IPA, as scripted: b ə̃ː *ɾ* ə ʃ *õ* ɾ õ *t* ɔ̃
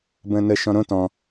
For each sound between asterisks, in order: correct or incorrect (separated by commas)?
incorrect, incorrect, correct